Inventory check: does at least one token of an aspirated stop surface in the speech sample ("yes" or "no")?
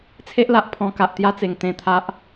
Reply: yes